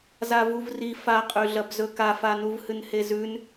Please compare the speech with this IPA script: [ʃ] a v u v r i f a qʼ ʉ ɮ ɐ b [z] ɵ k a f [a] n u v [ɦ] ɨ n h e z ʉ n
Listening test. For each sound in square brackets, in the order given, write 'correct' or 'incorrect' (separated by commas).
incorrect, correct, correct, incorrect